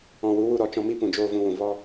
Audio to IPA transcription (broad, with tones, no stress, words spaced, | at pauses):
ɔ̃˨wu˨˦wu˧ɾɔ˨ t͡ʃɔ̃˧ mi˦pũ˨d͡ʒoː˧ vũ˧wũ˨ vɔ˦